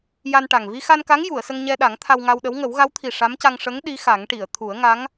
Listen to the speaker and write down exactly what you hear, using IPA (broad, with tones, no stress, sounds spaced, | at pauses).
j a˧ n ʈ a˨˩ ŋ v i˧ x a˧ n k a˧˥ ŋ j u˨˩˨ ə̯ s ə˧ ŋ ɲ ɛ˧ ɗ a˨˩˦ ŋ t̪ʰ a˧ w ŋ a˧ w ɗ ə˧˥ w ŋ ə˨˩˦ w ɣ a˧˥ w t̪ʰ i˨˩ ʂ a˧˥ m c a˧ ŋ ʂ ə˧˥ ŋ ɗ i˧˥ x a˨˩˦ ŋ ʈ i˨˩˨ ə̯ t̪ʰ u˨˩˦ ə̯ ŋ a˧˥ ŋ